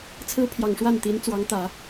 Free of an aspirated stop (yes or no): no